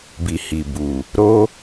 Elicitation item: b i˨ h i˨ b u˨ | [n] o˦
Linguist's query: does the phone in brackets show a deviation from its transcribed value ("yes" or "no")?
yes